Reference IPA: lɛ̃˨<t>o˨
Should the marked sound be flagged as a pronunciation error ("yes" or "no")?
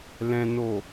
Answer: yes